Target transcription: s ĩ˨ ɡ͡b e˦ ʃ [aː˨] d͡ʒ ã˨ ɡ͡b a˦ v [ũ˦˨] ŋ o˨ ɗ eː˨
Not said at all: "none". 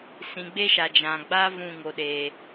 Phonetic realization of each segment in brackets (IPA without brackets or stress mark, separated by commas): a˨, ũ˦˨